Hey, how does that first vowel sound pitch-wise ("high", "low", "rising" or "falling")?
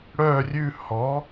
falling